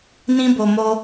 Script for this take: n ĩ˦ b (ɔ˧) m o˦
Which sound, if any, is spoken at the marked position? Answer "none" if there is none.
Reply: o˧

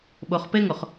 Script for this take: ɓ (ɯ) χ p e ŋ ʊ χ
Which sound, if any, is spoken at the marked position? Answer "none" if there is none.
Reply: ʊ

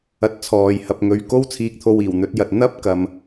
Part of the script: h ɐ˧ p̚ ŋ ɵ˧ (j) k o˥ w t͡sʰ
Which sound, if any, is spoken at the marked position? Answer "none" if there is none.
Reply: ɥ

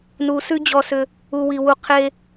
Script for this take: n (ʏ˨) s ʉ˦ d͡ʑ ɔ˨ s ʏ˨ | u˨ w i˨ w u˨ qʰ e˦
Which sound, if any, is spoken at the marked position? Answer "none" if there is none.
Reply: u˨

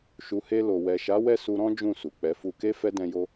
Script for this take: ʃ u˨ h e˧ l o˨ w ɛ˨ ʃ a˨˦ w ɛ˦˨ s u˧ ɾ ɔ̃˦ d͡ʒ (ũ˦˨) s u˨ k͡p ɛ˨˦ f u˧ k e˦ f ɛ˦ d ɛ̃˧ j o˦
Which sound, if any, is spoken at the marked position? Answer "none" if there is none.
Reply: ũ˦˨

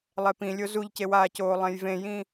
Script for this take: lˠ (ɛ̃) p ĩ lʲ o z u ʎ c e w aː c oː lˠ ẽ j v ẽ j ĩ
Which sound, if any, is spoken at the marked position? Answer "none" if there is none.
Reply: ɛ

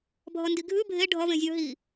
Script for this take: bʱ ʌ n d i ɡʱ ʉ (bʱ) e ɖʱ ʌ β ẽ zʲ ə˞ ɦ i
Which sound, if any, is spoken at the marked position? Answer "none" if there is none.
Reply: bʱ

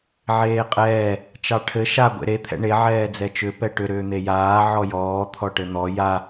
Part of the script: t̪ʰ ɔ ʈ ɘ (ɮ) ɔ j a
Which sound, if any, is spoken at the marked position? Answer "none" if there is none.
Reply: n̪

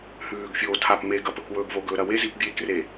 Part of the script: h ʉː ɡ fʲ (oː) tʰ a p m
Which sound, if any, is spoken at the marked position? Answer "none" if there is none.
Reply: oː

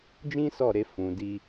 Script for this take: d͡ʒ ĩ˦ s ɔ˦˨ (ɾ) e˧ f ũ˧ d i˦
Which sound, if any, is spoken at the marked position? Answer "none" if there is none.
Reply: ɾ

